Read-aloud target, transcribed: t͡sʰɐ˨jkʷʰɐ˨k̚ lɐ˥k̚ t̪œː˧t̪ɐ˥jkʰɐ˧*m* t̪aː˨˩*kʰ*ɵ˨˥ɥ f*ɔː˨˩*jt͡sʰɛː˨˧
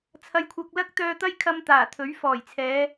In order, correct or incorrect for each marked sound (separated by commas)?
correct, incorrect, correct